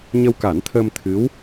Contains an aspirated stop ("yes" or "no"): yes